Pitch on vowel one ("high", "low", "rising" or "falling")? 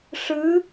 rising